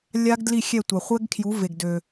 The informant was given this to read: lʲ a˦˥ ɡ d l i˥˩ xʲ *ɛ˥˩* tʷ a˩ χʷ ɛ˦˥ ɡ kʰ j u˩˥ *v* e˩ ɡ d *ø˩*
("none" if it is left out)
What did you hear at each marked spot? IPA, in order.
ɛ˥˩, v, ø˩

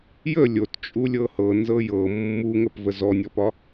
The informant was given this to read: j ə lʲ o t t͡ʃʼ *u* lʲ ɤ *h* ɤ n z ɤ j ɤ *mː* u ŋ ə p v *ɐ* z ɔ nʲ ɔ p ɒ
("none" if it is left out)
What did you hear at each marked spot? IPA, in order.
u, h, mː, ə

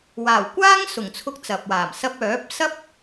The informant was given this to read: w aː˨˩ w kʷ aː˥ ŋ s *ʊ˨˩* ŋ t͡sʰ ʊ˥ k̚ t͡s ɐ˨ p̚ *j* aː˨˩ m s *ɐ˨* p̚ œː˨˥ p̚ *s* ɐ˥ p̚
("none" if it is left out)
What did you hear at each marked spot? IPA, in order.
ʊ˨˩, w, ɐ˧, s

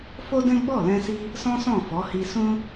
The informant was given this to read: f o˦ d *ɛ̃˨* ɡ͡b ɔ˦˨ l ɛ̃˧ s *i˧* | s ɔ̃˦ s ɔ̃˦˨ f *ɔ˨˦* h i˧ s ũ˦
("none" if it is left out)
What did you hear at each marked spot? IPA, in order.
ɛ̃˦, i˦, ɔ˨˦

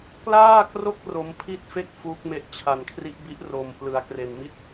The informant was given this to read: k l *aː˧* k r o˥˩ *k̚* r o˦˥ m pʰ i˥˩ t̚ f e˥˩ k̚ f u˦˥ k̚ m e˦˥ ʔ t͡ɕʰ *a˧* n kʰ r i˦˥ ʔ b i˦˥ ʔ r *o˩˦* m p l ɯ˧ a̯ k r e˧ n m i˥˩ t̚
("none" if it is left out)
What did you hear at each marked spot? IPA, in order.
aː˥˩, k̚, a˧, o˧

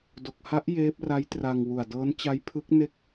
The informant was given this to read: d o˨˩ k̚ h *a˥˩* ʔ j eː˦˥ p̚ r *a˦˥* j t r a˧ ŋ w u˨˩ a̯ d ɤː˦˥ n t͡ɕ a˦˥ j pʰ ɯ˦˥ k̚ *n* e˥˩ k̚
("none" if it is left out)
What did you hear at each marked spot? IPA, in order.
a˦˥, a˦˥, n

